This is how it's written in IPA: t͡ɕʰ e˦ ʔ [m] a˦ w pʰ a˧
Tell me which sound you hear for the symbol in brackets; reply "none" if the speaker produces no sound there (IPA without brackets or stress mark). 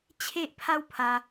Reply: pʰ